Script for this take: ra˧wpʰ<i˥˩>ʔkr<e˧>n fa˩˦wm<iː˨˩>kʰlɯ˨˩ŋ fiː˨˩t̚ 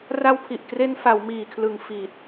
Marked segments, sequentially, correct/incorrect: incorrect: i˨˩, correct, correct

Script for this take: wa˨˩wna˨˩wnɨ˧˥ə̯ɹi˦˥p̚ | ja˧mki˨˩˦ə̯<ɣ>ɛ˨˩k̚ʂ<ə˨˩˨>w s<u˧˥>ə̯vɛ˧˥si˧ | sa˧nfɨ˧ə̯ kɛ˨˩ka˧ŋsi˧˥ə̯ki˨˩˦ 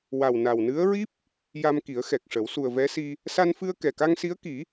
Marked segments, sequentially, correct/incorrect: incorrect: x, incorrect: ə˨˩˦, incorrect: u˨˩

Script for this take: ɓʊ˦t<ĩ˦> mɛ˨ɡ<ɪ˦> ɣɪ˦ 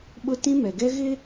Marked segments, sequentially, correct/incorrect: correct, incorrect: ɛ˦

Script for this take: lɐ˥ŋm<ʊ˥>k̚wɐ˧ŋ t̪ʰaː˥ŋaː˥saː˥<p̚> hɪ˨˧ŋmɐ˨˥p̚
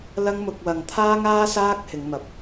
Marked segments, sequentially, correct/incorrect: incorrect: ʊ˧, incorrect: k̚

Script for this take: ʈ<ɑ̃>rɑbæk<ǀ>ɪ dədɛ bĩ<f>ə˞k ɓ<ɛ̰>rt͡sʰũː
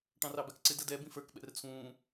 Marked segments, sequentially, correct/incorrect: correct, correct, correct, correct

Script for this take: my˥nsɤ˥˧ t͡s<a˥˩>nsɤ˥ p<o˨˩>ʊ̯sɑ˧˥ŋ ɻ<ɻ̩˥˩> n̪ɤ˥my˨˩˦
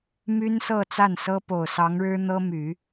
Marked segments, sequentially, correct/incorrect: correct, correct, incorrect: ɻ̩˥

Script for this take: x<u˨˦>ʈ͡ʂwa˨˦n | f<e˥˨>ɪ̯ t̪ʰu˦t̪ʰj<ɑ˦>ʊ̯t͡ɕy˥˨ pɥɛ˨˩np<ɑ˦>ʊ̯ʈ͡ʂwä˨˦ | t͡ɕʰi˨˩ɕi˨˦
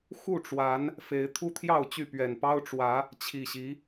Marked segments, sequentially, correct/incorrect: incorrect: u˥˨, incorrect: e˨˦, incorrect: ɑ˥˨, correct

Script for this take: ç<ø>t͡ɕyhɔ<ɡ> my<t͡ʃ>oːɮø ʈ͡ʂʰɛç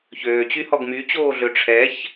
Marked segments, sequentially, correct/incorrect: incorrect: øː, correct, incorrect: t͡ɕ

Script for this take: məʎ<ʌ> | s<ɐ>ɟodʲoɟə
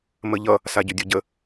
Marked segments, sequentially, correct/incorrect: correct, incorrect: a

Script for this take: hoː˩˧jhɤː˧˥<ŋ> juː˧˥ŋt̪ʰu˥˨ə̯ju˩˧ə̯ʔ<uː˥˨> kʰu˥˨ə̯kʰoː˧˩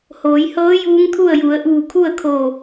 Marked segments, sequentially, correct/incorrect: incorrect: none, incorrect: uː˧˩

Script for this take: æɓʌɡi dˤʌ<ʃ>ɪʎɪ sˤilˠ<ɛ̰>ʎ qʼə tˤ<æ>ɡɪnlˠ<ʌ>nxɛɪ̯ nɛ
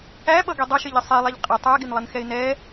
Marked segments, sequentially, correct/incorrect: correct, incorrect: ɛ, correct, correct

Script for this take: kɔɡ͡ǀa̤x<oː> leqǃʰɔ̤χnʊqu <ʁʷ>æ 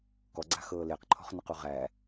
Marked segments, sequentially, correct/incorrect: incorrect: ɤː, incorrect: ʁ

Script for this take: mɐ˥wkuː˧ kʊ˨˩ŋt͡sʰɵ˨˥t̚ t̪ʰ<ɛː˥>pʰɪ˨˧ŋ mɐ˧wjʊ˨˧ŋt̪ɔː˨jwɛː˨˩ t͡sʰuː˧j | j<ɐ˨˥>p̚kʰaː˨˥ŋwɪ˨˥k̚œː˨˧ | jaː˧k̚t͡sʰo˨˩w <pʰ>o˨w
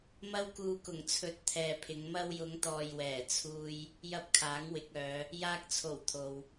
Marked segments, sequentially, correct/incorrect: incorrect: ɛː˨, incorrect: ɐ˥, incorrect: t̪ʰ

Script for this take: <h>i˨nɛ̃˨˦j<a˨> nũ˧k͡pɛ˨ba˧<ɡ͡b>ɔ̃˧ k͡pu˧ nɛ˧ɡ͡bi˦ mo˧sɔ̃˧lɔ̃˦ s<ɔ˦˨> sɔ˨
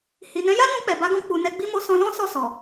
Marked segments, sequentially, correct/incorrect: correct, incorrect: a˦, incorrect: ɡ, correct

